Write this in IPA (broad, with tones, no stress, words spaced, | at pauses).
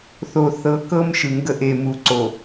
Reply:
θo˨ θɤ˨˦kɤ˦m ʃɯ˨ŋɡə˦ʔe˨ mu˨ ǀo˨